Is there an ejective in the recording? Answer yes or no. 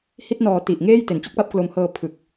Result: no